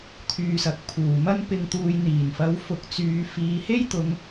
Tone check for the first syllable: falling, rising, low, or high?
low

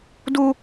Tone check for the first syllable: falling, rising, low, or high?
high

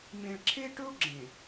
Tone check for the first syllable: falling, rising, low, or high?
low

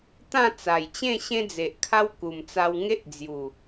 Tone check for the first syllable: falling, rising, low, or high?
falling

